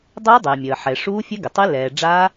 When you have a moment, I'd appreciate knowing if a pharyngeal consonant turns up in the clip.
yes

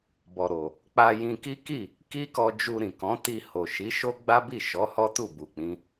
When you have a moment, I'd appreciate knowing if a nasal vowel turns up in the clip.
yes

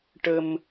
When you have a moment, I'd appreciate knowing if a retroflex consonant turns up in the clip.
yes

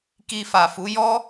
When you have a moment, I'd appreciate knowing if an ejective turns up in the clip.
no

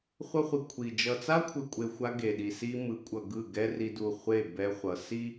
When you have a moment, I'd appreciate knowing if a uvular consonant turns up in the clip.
yes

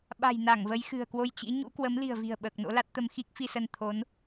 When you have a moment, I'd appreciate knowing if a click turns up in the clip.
no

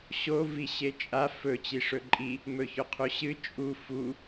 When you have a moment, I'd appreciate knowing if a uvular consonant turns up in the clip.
yes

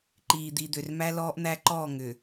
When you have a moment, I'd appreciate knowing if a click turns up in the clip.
yes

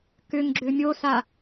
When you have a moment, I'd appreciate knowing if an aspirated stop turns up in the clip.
no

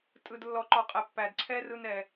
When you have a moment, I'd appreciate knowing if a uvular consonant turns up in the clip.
yes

